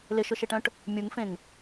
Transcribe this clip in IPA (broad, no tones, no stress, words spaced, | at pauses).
lɪʃʊʃɪʈœ̃ʈ | mʲuŋfẽŋ